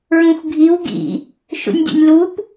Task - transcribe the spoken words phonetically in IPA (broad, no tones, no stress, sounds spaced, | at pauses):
ɹ ũ xʷ ɡʱ i w ɡ ḭ | ʃ ṵ nʲ dʲ o̰ nʲ l u p